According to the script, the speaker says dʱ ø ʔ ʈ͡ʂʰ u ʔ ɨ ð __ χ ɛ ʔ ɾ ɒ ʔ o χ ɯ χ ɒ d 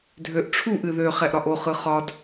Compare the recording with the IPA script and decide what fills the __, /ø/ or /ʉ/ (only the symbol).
ø